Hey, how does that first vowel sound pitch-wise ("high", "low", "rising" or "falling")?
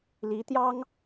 rising